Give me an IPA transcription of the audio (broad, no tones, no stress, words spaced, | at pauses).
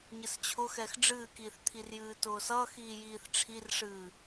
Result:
ɲɨst͡ɕʰʊxɛx ɖ͡ʐɨːkiːθt̪ʰirjɨː tʊːsʌːxiː jiːθʈ͡ʂʰirʂɨː